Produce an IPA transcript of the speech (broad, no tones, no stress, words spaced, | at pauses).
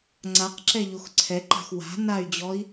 ŋ͡ǀaqǁɛ ʎoxǀʰɛǃa̤x wa̤ nay̯d͡ʑɔi̯